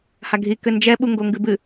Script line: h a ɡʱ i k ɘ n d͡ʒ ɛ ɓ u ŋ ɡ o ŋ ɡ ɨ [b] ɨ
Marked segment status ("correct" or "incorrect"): correct